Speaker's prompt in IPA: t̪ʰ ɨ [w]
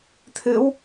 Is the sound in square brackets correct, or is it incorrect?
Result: correct